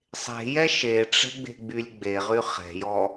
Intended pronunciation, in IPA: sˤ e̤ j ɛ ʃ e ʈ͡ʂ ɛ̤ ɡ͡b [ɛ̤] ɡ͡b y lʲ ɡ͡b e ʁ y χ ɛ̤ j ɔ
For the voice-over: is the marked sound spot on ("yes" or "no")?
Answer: no